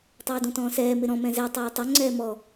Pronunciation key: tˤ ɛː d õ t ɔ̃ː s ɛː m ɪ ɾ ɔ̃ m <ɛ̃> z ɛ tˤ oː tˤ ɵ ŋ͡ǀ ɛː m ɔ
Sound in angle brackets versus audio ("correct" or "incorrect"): correct